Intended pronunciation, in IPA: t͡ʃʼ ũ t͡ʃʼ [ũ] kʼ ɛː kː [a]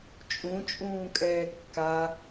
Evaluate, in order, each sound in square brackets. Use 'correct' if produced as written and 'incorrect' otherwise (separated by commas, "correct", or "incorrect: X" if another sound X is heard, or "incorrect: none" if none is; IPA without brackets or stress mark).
incorrect: ũː, correct